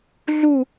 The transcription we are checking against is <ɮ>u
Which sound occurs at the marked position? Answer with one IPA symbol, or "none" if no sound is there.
ɮ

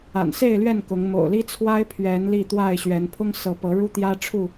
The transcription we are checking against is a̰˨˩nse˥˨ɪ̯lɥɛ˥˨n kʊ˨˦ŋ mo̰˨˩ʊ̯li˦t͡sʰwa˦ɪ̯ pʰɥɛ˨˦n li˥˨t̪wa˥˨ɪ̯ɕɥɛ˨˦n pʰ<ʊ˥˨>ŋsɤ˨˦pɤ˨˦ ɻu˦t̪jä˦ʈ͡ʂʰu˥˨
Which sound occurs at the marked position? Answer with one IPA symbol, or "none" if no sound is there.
ʊ˦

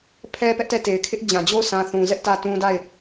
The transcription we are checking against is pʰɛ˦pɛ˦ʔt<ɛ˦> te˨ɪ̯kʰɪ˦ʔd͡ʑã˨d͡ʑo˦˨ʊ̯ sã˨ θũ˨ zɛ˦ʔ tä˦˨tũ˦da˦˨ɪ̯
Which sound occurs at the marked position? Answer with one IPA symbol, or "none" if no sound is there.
ɛ˦˨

